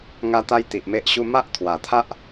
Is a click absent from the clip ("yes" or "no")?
yes